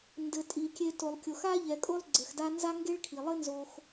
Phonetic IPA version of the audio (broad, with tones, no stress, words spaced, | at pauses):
ndɘ˩tʼi˩kʲe˨ to˩lˠkʲo˩x a˦ ʎɛ˩kʼo˦lˠ ɡ͡ǀɘ˩xda˦nza˥ ŋɡe˥ɭkʰi˩lˠɘ˥nzo˨x